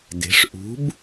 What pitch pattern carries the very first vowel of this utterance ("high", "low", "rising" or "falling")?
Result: rising